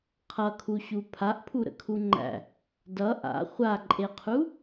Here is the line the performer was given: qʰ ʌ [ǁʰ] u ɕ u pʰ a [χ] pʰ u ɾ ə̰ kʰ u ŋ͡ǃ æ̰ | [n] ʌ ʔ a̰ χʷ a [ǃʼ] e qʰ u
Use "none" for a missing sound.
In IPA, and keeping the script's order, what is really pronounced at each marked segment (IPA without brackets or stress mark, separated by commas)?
kʰ, ʔ, d, ǃʼ